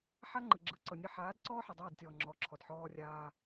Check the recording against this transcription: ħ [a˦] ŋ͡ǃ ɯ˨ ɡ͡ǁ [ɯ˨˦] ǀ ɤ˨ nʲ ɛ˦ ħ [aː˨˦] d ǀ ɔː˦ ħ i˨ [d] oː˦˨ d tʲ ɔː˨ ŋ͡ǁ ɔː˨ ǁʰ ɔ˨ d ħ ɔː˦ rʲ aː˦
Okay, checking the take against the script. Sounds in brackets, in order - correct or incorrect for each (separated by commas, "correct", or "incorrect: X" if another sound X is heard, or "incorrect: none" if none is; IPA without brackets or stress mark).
correct, correct, correct, incorrect: dˤ